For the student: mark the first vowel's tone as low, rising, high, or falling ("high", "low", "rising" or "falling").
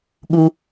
low